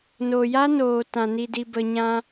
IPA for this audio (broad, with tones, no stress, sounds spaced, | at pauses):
n o˨ j a˦ n oː˨ t ã˨ n i˧ d i˧ b ə˧ ɲ ã˦